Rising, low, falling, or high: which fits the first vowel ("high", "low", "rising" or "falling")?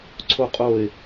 high